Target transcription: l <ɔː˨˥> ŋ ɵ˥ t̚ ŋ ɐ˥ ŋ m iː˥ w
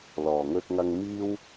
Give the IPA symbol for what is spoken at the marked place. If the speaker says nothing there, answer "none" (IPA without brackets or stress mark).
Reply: ɔː˨˩